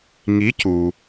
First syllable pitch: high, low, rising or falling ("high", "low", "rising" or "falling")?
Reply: rising